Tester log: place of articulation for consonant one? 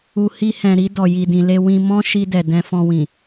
glottal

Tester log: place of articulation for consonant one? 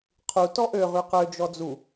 uvular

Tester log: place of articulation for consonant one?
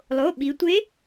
alveolar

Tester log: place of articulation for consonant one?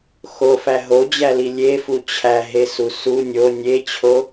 velar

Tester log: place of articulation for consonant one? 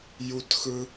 palatal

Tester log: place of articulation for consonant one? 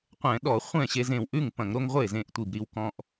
uvular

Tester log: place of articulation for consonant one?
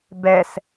labial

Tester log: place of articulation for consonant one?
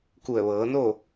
velar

